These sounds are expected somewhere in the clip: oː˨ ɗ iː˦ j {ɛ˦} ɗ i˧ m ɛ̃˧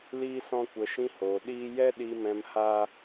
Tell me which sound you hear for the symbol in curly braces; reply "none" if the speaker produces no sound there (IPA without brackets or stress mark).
ɛ˦